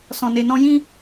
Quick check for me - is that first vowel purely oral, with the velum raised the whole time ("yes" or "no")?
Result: no